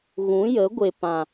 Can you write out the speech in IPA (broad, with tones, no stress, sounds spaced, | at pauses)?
ɣ ũ˨˦ j ə˨˦ ɡʷ e˨ p ã˨